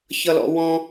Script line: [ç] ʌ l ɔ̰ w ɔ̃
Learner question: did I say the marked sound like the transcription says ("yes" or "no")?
yes